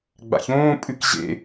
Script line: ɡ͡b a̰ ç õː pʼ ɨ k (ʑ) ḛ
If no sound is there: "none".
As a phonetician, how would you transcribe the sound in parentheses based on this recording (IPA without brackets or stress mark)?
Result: ʑ